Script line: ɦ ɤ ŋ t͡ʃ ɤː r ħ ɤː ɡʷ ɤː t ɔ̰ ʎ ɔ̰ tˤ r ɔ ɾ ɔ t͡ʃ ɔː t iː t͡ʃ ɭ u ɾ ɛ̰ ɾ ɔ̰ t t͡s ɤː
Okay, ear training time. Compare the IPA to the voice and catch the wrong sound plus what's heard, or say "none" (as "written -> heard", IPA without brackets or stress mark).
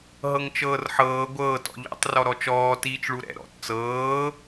none